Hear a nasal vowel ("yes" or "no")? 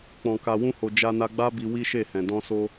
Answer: yes